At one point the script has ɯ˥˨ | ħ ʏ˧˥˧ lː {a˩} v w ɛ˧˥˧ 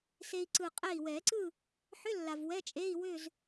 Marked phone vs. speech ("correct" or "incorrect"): correct